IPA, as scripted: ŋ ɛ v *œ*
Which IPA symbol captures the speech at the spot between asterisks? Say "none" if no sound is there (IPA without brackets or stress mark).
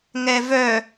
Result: œ